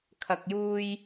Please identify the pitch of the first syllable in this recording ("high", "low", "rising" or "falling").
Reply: low